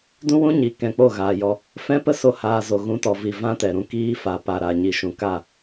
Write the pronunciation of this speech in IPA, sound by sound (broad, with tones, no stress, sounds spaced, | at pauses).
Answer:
d ũ˦ w ũ˦ ɲ i˨˦ k ɛ̃˧ k͡p o˦˨ ɣ aː˨ j ɔ˧ | f ɛ̃˦ p ə˦ s o˦ h aː˧ z o˨ ɣ ũ˧ t ɔ˨ v i˨ v ã˦ t ɛ˨ ɾ ũ˧ k iː˦ f a˨ p a˨ ɾ a˨ ɲ i˨ ʃ ũ˨ k a˦˨